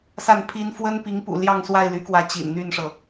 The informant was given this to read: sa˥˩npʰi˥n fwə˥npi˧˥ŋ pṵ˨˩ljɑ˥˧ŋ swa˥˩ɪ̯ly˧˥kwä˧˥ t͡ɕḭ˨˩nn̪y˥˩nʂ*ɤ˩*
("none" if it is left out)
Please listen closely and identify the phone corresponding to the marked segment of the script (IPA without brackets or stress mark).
ɤ˩